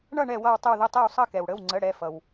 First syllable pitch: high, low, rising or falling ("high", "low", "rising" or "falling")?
falling